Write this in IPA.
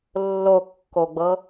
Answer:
lː o kː o ɡ͡b ɤ

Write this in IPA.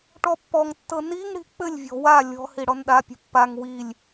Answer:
ʈ ɔ pː ɔ ŋ tː ɤ n i ŋ ɽ i̤ k͡p ɘ lʲ vʲ ɔ̤ w a lʲ ɔ̤ h i ɽ ɔ n ɗ a pʲ o̤ pː a ŋ w i lʲ

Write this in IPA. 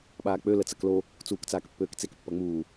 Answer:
ɓ aː k͡p ø l ə t͡s ɐ k l o | t͡s uː k t͡s aː k pː øː k t͡s e k pː ɐ ŋ͡m uː

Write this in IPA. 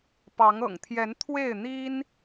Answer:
p ɑ˨˦ ŋ ɤ̰˨˩ ŋ t̪ʰ j ɛ˨˦ n t̪ʰ w e˥˨ ɪ̯ n̪ i˦ n

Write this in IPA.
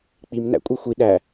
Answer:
k͡p i m n æ̰ kʷʼ e xʷ i ɗ æ

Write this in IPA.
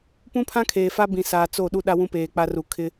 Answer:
p ũ˦ pʰ ã˦ kʰ eː˨ f a˦ b ĩ˨ s aː˨ t͡s o˦˨ ɗ u˦ ɗ a˦ w ũ˦ p eː˨ k͡p a˦ r u˨ kʰ ɪ˦

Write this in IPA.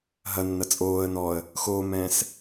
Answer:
ɦ ɐ nː ɐ t͡sʼ oː ə̯ n ɔ ə̯ | x oː m ɛ̃ː s

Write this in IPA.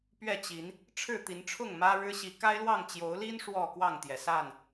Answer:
p ɥ ɛ˥˨ t͡ɕ i˨˦ n | ʈ͡ʂʰ ɻ̩˥˨ t̪ i˨˦ n ʈ͡ʂʰ ʊ˥˨ ŋ m ä˦ ɻ ɻ̩˦ ɕ i˨˦ k a˦ ɪ̯ l w ɑ˥˨ ŋ t͡ɕ j o˨˦ ʊ̯ l i˦ n ʂ w ɔ˥˨ k w ɑ˥˨ ŋ t̪ j ɛ˩ s a˥˨ n

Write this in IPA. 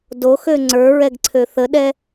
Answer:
d o x ø ŋ͡ǀ ə˞ ɹ ɛ ɡ ǀʰ ø θ ə ɗ ɛ

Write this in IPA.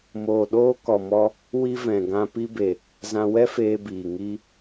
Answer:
m oː˨ ɗ oː˧ k ɔ˨ m ɔ˧ | w i˧ v ɛ̃˨ ɡ ã˧ p i˧ b e˨ | z ã˧ w ɛ˦ f eː˧ b iː˨ ŋ i˧

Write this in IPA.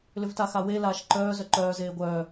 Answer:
l ʏ v t a x a w e l aː ʃ ǃ œː z œ ǃ œː z eː ɡʷ œː

